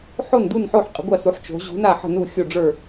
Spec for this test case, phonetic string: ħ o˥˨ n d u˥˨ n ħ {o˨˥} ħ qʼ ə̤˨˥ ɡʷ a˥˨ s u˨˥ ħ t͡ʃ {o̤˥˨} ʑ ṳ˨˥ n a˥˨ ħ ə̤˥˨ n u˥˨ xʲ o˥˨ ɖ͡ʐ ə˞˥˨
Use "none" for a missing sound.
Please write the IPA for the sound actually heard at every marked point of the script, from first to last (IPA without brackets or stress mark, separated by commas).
o˥˨, o̤˨˥